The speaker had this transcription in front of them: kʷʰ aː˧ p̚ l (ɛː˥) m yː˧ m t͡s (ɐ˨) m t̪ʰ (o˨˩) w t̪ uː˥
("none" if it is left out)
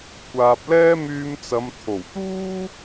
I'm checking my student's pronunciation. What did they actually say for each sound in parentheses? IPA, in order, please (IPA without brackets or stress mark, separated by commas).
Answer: ɛː˥, ɐ˨˧, o˨˩